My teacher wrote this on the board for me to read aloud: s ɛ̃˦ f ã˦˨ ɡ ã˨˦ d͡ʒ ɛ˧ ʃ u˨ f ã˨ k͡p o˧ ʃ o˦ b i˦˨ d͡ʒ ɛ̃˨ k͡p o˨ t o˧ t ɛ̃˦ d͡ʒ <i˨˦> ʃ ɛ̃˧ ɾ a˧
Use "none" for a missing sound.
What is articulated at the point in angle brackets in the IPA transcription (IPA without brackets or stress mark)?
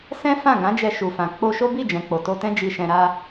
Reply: i˧